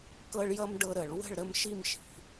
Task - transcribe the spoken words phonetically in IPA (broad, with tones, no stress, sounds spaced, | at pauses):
k ɤ˦ ɭ j ʌ˦ m ɖ ɤ˦ ɾ ə˨˩˦ ɭ w ə̤˥˨ ɭ ɾ ə˥˨ m ʃ i˥˨ m ʃ i̤˩˥